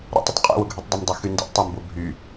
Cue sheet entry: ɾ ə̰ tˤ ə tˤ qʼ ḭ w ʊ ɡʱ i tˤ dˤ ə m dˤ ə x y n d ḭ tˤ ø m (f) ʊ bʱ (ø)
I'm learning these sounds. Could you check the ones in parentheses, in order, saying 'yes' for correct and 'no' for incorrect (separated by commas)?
no, no